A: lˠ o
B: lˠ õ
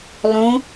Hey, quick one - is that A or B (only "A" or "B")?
B